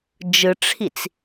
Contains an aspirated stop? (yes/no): yes